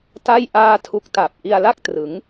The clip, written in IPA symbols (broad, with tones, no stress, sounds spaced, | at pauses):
t a˥˩ j ʔ aː˥˩ tʰ u˦˥ k̚ t a˨˩ p̚ ʔ i˧ a̯ l a˥˩ k̚ t r ɯ˩˦ ŋ